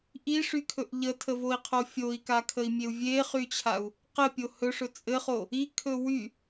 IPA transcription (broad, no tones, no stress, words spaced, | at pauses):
ʔiʂykʰɵʔ ʎətʰəvoi̯qʰo fʲoi̯kakʰəi̯mʲeu̯ vʲeχyt͡ɕʰau̯ | qɘpʲo hɵʂɵ t͡sʼɘχo | ikʰɵ wy